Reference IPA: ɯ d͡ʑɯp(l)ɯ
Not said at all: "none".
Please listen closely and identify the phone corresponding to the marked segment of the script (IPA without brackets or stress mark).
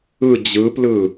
l